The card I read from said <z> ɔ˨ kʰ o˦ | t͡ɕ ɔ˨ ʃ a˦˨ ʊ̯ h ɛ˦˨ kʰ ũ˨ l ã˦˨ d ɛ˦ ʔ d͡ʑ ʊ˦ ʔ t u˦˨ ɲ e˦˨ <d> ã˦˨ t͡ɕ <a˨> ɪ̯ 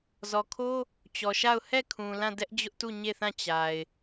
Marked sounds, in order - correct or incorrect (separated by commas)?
correct, incorrect, correct